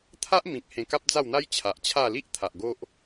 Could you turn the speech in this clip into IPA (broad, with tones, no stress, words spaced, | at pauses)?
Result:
t̪ʰa˦ʔmĩ˨k̚ hẽ˧ka˦p̚d͡za˥˧wn̪a˦j t͡ɕʰa˨ʔt͡ɕʰa˥˧ li˦ʔt̪ʰa˨ʔ ɡo˦ʔ